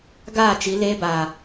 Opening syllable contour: falling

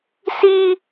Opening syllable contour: high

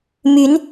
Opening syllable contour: rising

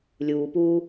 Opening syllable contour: low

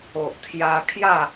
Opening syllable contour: low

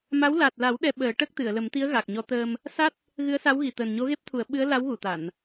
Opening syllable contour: rising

